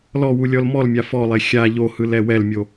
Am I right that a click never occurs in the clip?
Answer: yes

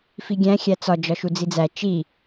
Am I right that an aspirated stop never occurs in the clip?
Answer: yes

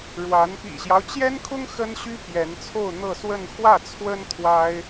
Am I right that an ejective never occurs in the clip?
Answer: yes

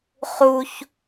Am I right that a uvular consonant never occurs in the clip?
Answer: no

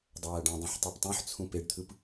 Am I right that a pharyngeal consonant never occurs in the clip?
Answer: no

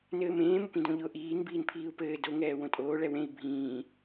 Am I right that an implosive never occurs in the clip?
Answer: yes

